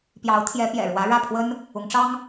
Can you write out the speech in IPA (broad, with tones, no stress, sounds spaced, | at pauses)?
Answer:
p j ɑ˧˥ ʊ̯ t̪ʰ j ɛ˧˥ p j ɛ̰˨˩ ɻ w ä˧˥ ɻ ä˥˩ pʰ w ə˥ n | ʊ˧˥ ŋ ʈ͡ʂ ɑ˥ ŋ